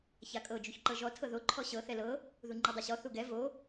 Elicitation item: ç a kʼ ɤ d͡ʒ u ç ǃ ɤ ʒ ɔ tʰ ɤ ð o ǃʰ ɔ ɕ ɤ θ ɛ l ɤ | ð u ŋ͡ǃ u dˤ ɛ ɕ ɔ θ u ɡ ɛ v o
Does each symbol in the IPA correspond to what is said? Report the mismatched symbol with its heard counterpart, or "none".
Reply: none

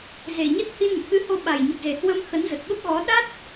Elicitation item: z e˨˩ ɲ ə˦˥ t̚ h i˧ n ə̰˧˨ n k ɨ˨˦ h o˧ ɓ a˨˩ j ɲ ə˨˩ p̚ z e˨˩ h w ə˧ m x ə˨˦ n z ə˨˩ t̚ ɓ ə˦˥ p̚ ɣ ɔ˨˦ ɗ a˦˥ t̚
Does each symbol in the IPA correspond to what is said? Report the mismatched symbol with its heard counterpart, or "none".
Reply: none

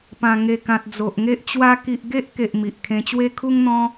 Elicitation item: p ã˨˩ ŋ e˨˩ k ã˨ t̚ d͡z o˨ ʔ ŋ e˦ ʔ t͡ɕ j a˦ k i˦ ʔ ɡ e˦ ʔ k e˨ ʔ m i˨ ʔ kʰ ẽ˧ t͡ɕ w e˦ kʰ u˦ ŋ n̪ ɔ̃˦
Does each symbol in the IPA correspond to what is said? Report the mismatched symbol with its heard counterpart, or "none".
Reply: j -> w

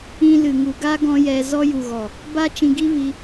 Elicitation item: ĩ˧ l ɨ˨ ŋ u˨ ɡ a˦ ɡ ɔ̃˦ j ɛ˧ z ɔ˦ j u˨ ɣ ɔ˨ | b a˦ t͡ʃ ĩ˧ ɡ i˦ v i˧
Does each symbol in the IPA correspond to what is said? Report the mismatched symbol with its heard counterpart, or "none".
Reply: none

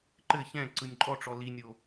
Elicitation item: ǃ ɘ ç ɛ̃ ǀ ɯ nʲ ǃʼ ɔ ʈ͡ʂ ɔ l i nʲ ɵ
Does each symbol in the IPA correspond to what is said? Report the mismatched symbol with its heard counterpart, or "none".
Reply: ɵ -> o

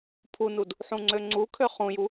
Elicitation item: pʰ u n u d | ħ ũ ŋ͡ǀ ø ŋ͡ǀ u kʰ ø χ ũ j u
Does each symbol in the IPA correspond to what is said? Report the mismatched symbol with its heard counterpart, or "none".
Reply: none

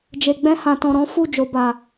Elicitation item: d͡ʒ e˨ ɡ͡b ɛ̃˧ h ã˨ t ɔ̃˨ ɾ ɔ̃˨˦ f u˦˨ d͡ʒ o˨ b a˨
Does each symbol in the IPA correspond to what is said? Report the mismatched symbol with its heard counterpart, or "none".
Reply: none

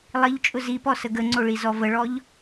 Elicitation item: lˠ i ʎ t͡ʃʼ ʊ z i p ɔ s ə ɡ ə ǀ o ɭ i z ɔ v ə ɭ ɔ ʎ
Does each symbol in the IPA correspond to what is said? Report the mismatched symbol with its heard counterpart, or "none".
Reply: ǀ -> ŋ͡ǀ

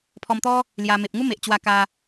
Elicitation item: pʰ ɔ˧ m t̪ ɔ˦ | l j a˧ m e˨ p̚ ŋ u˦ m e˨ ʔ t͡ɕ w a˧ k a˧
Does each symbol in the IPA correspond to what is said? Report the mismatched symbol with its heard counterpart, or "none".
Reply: none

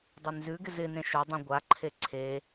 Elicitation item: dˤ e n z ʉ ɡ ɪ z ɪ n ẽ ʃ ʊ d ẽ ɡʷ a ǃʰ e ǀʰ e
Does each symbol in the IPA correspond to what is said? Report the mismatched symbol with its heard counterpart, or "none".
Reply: d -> dˤ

